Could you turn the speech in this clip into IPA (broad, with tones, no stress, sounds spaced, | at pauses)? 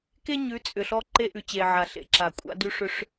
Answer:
k e˦ ɲ ʉ˨˦ t͡sʼ ʏ˨ ɬ ɔ˦ ǃ e˦ ʔ ʉ˨ t͡ɕ eː˨ ʕ a˨ ɬ ḛ˨ ǁ a˨ kʷʼ a̰˦ d ʉ˦ ʂ ʏ˦ ʂ